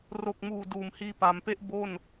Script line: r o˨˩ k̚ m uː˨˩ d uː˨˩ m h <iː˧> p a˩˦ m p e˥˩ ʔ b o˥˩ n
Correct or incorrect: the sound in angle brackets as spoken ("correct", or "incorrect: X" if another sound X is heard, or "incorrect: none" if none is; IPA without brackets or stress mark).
correct